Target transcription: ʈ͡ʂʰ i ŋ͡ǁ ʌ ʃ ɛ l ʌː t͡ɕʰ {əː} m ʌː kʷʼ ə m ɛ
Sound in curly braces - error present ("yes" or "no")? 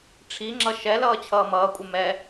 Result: yes